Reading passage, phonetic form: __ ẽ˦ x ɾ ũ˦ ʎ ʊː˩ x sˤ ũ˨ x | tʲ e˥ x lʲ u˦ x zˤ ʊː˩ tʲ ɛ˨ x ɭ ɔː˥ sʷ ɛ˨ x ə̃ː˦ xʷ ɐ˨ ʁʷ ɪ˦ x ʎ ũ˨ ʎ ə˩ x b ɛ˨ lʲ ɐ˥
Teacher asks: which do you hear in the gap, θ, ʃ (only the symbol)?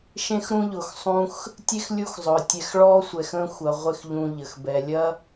ʃ